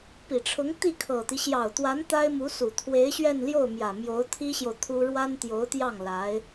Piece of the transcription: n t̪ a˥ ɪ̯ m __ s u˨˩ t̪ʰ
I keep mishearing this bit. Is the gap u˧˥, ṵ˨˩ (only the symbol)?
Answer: u˧˥